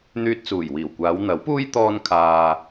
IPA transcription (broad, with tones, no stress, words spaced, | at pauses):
n̪yː˧t̚t͡suː˨˩jwiː˨˩wkʷaː˨˧w n̪ɐ˨˥wpuː˥j t̪ɔː˥nkʰaː˧